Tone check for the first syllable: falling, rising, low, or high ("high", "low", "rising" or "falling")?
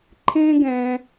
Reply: high